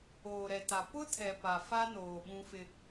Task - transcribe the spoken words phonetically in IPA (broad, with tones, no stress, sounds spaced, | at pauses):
oː˨ ɾ ɛ˨ t a˨ p ʊ˦ tʰ ɛ˨ p a˨ f a˦ n oː˨ ɓ ũ˦ f ɪ˦